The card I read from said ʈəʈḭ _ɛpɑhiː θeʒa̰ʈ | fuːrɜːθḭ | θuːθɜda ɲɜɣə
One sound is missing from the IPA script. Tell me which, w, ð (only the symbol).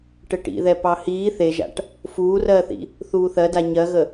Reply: ð